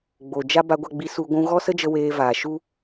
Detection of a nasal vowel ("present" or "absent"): present